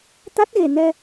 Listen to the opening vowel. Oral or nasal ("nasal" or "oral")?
oral